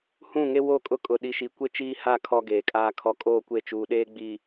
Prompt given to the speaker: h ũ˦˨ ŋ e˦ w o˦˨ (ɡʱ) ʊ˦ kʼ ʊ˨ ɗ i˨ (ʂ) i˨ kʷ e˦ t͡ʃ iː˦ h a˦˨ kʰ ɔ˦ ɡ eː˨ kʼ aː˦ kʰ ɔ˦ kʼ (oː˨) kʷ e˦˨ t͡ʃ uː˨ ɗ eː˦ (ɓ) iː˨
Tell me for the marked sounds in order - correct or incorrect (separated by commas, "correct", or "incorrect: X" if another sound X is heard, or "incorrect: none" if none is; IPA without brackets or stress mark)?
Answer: incorrect: kʼ, incorrect: ʃ, incorrect: oː˦˨, incorrect: ɡ͡b